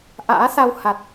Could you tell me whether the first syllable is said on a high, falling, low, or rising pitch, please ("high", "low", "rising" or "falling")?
rising